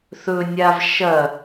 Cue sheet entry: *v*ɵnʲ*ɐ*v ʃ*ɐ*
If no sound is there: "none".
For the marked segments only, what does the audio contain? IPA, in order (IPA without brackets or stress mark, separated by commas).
θ, a, ɐ